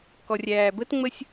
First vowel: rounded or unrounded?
rounded